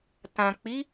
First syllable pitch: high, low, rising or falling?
low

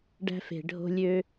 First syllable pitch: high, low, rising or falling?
high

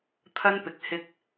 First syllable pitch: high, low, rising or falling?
high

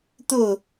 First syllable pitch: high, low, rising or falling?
falling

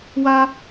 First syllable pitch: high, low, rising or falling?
high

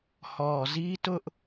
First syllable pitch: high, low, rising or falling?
low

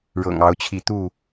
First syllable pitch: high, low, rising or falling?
low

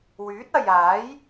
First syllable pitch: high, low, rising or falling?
rising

